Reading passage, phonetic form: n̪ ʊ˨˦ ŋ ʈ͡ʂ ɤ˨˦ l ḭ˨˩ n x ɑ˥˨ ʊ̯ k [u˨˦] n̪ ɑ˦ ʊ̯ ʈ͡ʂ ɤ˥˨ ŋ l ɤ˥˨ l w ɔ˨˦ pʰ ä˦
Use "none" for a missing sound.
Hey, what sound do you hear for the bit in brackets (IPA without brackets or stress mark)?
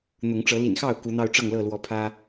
u˨˦